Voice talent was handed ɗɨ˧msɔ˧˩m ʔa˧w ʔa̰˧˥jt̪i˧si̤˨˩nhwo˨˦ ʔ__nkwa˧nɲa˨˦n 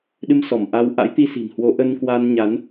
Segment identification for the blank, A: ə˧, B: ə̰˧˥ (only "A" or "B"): A